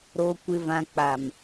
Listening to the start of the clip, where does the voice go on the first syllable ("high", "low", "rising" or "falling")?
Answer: low